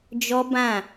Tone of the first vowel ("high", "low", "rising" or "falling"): high